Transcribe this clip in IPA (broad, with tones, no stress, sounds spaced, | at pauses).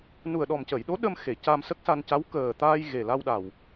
n u˨˩ ə̯ ɗ ɔ˨˩ m c ə˨˩˨ j ɗ o˧˥ ɗ ə˧ m x e˨˩˨ c a˧ m s ə˦˥ k̚ s a˧ n c a˧˥ w k əː˨˩ t̪ aː˧ j ɣ e˨˩ l a˧ w ɗ a˨˩ w